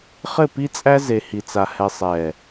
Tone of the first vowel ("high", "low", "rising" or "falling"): falling